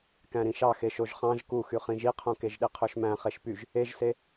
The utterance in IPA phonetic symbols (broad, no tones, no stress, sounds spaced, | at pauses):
k æ̃ ɾ ĩ ʃ ɑ x e ʃ o ʒ χ ɑ̃ ʒ k u x y χ ĩ ʒ i qʰ õ k e ʒ ɗ i qʰ ø ʃ m æ̃ χ e ʃ p y ʒ | e ʒ s e